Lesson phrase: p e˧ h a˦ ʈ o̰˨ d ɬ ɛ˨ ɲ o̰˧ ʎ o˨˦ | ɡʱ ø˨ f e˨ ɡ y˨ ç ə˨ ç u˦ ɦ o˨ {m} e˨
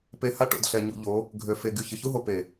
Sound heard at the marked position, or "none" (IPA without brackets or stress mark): p